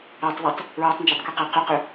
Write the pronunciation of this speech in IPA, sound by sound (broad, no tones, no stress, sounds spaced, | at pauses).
æ tˤ ð i tˤ | ɹ æ tˤ n d͡ʒ æ tˤ k u q æ q ʏ q ʏ